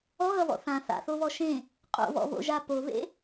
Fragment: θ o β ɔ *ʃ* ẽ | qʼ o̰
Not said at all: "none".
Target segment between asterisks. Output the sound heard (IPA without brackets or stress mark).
ʃ